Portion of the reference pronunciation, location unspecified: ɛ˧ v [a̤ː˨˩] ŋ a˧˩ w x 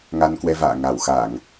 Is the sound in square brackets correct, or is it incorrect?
incorrect